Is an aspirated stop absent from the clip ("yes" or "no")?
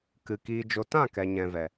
yes